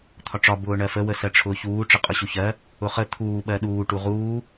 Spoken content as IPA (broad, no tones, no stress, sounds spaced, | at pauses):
t̪ʰ ɒ ʈ͡ʂ ɒ b ʊː ɳ ɜ f ə w ə s ɜ ʈ͡ʂʰ ʊː ç uː ʈ͡ʂ ə qʼ ʊ ɕ u ç ɜ | ʊ χ ə t̪ʰ uː ɓ ɜ ɗ uː ʈ u ʁ uː